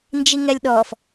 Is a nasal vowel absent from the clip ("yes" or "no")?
yes